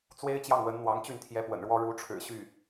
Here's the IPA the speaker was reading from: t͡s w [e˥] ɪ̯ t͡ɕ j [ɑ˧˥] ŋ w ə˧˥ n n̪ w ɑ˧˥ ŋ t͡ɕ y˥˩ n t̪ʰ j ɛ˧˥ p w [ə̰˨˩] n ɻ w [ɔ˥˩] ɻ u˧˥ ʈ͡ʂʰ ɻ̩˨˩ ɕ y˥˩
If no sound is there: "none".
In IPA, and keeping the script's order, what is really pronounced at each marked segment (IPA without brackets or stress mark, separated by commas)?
e˥, ɑ˥˩, ə̰˨˩, ɔ˥